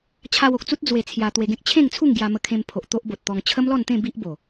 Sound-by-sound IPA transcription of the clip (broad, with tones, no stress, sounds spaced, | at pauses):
t͡ɕʰ a˧ w o˨ k̚ t͡s u˦ t̚ d͡z w e˧ t͡sʰ j a˧ t̪ w e˧ ɡ ẽ˦ k̚ t͡ɕʰ ẽ˥˧ ŋ t͡sʰ u˥˧ ŋ ɡ j a˧ m ə˧ kʰ ẽ˧ m pʰ o˨ ʔ t̪ o˦ ʔ b o˨ t̚ t̪ ɔ˧ ŋ t͡ɕʰ ə˦ m l ɔ˥˧ n t̪ ẽ˥˧ b i˦ ʔ b o˨˩